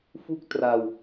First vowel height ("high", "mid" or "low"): high